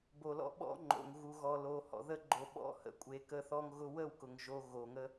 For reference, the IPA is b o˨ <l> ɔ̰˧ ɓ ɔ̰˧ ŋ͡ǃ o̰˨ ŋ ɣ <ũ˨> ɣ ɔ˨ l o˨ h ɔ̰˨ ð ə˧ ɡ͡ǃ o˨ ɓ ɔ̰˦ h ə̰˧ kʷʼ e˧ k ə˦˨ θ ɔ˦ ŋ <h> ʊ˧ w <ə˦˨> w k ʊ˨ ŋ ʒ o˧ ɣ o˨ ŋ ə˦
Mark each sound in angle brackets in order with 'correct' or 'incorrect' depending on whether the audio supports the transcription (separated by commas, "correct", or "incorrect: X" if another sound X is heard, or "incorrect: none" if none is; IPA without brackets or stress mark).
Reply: correct, incorrect: u˨, incorrect: ɣ, correct